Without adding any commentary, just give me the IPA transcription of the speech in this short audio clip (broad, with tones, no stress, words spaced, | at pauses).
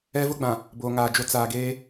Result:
ɛ˦vʊ˦ɡ͡bã˨ | bo˨ŋaː˨d͡ʒo˦ t͡saː˨ɡeː˦